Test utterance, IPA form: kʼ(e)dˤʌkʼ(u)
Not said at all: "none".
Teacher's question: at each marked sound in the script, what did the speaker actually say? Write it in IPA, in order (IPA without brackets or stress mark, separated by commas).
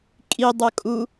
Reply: i, u